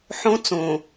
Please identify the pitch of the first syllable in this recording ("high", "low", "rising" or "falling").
high